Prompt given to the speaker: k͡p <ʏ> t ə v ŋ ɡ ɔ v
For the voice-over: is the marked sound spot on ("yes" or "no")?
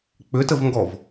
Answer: yes